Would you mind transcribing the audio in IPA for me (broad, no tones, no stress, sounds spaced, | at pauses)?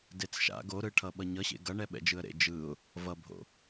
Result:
d e t͡s ʃ a̰ ɡ o ɾ ɯ ʈʰ ʌ ɓ ʌ ɲ ʌ ɕ ḛ ɡ ʌ ɳ ɛ ɓ ɛ̰ d͡ʒ ɯ ə̯ ɾ ḛ d͡ʒ ɯ ʊ̯ | v ʌ bʱ o̰